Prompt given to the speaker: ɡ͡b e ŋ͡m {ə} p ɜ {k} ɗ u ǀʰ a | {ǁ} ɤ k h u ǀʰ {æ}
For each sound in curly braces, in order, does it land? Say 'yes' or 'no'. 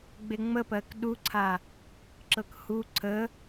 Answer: yes, yes, yes, no

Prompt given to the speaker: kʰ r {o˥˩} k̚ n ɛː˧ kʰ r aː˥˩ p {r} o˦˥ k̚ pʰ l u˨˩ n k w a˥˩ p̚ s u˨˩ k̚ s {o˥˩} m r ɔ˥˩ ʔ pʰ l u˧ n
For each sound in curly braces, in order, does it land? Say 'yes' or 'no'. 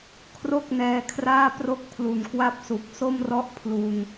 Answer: yes, yes, yes

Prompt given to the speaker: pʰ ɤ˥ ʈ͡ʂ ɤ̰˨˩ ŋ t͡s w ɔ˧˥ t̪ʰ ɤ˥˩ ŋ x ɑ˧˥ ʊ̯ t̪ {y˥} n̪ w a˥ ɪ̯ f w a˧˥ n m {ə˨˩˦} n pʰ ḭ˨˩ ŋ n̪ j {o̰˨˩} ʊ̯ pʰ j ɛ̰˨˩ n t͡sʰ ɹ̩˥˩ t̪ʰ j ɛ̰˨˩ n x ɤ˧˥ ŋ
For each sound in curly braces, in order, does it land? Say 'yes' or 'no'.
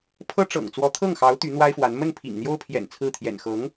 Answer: no, no, no

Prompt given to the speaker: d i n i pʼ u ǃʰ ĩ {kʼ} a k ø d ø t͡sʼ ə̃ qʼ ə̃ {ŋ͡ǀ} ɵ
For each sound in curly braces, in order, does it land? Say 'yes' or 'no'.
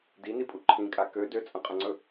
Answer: yes, yes

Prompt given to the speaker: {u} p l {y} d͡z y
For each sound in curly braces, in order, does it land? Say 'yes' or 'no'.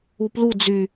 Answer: yes, no

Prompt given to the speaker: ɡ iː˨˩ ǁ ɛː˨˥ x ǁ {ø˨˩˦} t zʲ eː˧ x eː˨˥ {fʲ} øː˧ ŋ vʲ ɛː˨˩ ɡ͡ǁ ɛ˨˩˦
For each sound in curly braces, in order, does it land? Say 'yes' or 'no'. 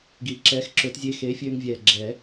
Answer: yes, yes

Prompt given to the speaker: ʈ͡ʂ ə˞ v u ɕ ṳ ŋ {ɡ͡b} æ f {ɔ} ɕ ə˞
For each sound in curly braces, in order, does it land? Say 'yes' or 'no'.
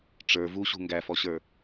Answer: no, yes

